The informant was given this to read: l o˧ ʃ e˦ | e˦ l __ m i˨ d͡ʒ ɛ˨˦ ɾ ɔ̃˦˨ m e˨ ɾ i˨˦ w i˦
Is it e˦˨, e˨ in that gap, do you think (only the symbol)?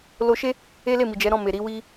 e˦˨